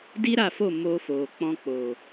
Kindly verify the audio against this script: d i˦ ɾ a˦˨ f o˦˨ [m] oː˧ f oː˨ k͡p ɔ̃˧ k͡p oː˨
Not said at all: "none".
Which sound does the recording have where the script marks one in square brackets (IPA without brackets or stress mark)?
m